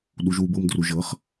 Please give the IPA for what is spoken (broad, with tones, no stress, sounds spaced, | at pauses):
ɗ u˨ ʒ w u˨ b ɤ˨ m d r u˨ ʒ ɤ˨˥ χ